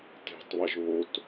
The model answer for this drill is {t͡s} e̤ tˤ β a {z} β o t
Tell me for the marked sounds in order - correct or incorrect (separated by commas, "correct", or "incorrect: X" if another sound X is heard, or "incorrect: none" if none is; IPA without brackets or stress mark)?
incorrect: t, incorrect: ʒ